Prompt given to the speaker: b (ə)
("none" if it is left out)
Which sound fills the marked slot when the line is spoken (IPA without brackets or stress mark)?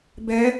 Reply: ɛ